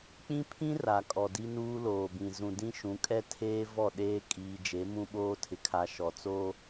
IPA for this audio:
k͡p ĩ˦ pʰ ĩ˦ r a˨ kʼ ɔ˨ d i˦ n uː˦ l oː˨ b ĩ˨ z ũ˨ d ĩ˦ ʃ ũ˨˦ kʼ ɛ˦ tʰ eː˦ v ɔ˦˨ ɗ eː˦ kʼ iː˨ d͡ʒ e˨˦ m ũ˦ ɓ oː˦ tʰ ɪ˨ kʰ a˨ ʃ ɔ˨ t͡s o˦

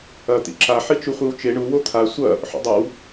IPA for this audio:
ɐ t̪ ḭ ǁ a ħ i t͡ʃ u χʷ i w t͡ʃ e ɳ u w o t̪ʰ a sʷ ɐ | ħ o̰ dˤ ɐ w

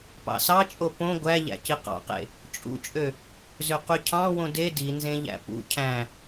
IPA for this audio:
p ɑ̰ s ɑ t͡ʃʼ o p õ ɡʷ æ ʎ æ̰ c i q ɑ̰ q ḛ | t͡ʃʼ ṵ t͡ʃʼ ø | z ø q y cʰ ɑ̃ w õ d e d i n z ẽ ʎ æ̰ p ṵ cʰ æ̃

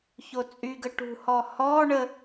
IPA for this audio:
ç o t͡sʼ y ɡ ə ʈ ṳ h ɔ h ɔ ɳ ə

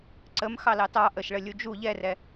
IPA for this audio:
ǀ ə m x ɑ l ɑ t ɑ ʔ ə ʃ ɭ ə lʲ u d͡ʒ u ʎ ɛ r ɛ

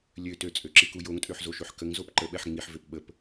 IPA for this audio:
lʲ ø t ø t͡sʼ ø ǁ i k u j o ŋ tʼ ø ħ z o ʃ ø ħ k ə ŋ z o p ǃ ə ɓ ɛ ħ ŋ͡m i ħ v ø p ɓ ə p

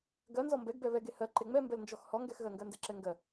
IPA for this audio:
ɡ ɜ n z ɔ m b ɛ ɡ b ɛ β ɛ ɡ e h ɜ ǃ e ŋ͡m ɛ m b ɛ l n d͡ʒ ɔ x h ɔ ŋ ɡ ɛ x ɣ ɜ ŋ ɡ ɜ n d ɛ ǁ ɛ ŋ ɡ ɜ

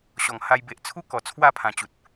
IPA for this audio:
ɕ ɔ˨˩ ŋ h a˧ j b e˨ ʔ t͡sʰ u˦ k ɔ˨˩ t͡sʰ w a˥˧ pʰ ã˨˩ t͡ɕ u˨ t̚

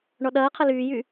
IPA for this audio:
ɳ ɔ ɗ ɐː qʰ ɐ l yː j y

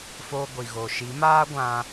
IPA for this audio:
f o˧ ɡʷ i˨ ɣ o˨ ʃ i˨˦ m aː˦ ɡʷ ã˧

